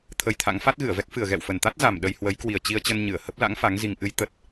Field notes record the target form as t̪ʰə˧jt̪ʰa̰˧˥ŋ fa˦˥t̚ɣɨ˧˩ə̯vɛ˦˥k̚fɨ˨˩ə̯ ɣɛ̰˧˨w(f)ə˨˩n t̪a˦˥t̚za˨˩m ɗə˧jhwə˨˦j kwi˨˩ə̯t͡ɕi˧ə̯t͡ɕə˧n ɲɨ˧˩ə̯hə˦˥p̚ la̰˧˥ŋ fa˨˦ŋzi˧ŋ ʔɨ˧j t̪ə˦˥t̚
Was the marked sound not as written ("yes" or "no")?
no